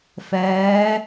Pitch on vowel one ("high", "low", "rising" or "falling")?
rising